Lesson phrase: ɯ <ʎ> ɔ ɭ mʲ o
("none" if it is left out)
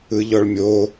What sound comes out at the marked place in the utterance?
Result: ʎ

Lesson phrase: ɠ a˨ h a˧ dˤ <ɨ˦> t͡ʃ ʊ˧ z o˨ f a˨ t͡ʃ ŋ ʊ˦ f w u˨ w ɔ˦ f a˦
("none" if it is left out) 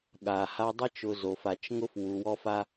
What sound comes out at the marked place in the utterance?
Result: ɪ˦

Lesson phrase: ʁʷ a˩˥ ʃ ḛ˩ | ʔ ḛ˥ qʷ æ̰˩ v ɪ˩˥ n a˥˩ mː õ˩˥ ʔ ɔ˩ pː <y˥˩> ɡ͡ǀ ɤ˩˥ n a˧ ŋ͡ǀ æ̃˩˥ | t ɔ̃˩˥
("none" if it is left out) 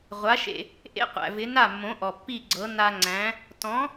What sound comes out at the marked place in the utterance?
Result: i˥˩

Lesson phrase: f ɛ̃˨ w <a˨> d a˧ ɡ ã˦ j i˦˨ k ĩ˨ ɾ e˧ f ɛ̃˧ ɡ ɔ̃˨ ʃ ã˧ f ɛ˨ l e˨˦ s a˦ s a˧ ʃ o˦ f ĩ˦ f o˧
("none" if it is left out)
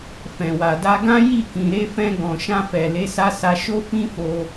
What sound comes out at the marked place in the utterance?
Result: a˨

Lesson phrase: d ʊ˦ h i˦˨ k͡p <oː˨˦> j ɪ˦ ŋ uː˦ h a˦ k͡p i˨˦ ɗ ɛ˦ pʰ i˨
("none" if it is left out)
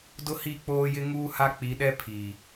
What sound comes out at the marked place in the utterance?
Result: oː˦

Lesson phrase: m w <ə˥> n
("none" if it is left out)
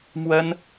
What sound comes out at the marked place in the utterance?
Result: ə˥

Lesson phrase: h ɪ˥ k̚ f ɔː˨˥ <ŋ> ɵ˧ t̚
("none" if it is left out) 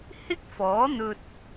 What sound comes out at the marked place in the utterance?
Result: n̪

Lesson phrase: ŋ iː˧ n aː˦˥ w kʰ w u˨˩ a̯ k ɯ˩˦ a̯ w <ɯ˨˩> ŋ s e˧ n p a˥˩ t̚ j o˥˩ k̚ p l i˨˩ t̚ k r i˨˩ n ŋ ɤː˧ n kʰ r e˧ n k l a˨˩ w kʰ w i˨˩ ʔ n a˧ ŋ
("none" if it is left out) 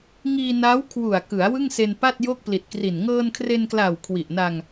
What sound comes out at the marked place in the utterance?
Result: ɯ˥˩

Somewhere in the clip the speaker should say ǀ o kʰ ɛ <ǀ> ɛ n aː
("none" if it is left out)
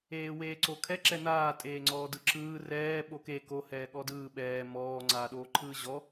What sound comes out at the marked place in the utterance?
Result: ǁ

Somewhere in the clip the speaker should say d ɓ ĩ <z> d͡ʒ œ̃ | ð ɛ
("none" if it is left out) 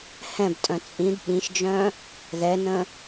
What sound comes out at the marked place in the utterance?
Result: ʃ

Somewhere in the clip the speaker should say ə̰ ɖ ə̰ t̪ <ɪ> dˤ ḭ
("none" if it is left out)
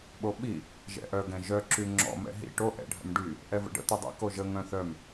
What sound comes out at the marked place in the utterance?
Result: i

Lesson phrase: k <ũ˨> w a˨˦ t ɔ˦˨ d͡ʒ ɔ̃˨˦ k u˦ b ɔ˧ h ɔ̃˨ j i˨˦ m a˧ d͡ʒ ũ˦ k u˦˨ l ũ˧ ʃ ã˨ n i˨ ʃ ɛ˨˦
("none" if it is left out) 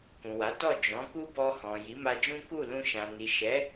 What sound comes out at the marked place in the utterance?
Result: ũ˨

